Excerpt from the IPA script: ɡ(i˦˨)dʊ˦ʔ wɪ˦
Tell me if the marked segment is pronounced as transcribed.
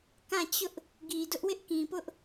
no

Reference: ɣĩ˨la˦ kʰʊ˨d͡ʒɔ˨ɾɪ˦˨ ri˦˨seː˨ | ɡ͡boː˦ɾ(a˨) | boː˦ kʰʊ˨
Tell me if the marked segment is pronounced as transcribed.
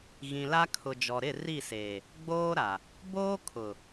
yes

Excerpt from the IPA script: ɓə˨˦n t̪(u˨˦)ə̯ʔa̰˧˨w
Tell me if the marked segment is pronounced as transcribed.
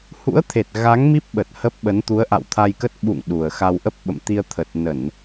yes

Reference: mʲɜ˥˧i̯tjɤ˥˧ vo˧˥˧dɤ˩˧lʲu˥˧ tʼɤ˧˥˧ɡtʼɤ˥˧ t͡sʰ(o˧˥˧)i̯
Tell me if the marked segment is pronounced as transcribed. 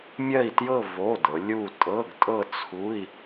no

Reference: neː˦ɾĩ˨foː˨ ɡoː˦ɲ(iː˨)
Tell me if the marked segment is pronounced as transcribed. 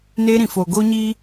no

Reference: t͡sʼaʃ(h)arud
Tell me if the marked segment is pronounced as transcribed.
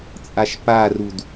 no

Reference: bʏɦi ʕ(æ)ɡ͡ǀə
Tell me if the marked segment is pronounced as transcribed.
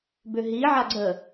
no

